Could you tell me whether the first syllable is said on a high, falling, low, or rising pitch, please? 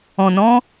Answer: low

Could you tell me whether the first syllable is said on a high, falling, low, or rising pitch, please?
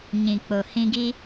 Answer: low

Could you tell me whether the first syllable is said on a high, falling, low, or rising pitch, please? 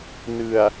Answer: low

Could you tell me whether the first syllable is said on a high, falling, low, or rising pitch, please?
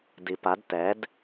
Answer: low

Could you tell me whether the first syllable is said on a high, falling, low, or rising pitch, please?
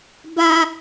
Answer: high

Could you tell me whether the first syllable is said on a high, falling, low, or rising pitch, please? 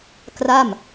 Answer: falling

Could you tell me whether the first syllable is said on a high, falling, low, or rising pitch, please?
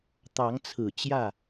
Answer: rising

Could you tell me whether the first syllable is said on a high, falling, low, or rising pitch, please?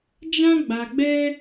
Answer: high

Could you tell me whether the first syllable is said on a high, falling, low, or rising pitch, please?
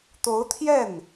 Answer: rising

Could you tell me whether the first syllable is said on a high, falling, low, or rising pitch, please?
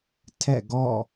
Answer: falling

